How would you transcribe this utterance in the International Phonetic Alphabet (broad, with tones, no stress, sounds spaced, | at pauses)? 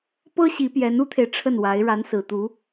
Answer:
p ɤ˥ ɕ i˧˥ p j ɛ˧˥ n u˥ t̪ʰ e˨ ɪ̯ ʈ͡ʂʰ ə˥˩ n w a˧˥ ɪ̯ ɻ a˧˥ n s ɹ̩˨˩ t̪ u˧˥